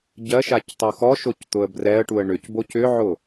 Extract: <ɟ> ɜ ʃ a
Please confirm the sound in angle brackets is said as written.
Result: yes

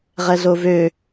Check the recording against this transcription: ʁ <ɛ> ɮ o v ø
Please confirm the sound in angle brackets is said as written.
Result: yes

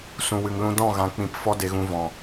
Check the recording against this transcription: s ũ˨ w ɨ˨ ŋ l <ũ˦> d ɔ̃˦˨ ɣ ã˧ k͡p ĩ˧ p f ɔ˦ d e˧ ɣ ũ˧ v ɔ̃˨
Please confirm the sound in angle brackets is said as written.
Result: no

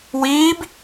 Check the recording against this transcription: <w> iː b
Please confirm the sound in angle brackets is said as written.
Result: yes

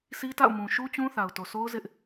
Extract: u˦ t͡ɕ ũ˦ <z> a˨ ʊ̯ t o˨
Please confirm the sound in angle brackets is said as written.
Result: no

